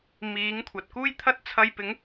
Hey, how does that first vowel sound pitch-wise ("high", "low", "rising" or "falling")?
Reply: rising